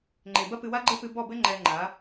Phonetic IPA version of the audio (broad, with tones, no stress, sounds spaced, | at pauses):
ŋ͡ǃ e˨ b ɐ˦ p ɨ˧ w a˦ ɡ͡ǃ ɘ˦ p ɨ˧ b ɔ˦˨ b ɘ˦ ŋ͡ǃ ɛ˧ ŋ͡ǃ a˨˦